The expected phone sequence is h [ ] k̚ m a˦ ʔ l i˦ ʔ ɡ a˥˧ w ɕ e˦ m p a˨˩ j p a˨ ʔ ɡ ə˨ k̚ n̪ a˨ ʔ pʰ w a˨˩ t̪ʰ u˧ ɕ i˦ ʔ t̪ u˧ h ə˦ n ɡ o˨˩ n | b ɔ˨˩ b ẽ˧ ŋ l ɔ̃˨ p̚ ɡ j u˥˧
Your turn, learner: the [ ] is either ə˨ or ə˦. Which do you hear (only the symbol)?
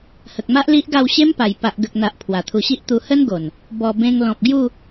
ə˨